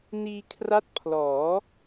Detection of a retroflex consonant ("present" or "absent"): absent